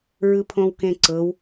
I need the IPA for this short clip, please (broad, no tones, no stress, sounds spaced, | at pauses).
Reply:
ɹ ɯ pʰ õ w k ẽ ǀ ɤ w